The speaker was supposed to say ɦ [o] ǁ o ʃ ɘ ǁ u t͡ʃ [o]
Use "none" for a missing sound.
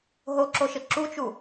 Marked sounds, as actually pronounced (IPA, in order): o, u

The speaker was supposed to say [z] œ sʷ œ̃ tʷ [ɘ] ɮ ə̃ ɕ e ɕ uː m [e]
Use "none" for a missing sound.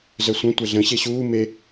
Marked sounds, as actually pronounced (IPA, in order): z, ɛ, e

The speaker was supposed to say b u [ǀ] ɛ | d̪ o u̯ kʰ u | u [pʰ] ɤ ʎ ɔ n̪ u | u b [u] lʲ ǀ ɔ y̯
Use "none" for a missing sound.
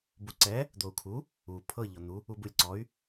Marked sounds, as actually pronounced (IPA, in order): ǀ, pʰ, u

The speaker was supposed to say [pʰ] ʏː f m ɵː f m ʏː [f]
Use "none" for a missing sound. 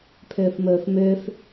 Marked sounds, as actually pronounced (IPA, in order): pʰ, f

